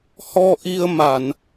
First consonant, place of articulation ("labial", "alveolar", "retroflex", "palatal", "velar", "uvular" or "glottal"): glottal